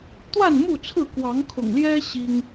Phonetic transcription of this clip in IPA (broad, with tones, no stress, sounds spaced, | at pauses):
t̪ w a˥˨ n m u˥˨ t͡sʰ ɹ̩˥˨ k w ɑ˨˦ ŋ kʰ ʊ̰˨˩ ŋ l j ɛ˦ ɕ i˦ ŋ